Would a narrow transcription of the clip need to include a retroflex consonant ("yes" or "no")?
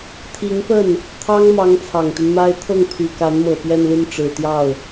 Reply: yes